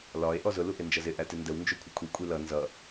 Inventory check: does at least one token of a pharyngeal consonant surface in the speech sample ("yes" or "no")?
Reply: no